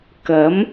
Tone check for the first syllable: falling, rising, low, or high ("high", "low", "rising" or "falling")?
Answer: rising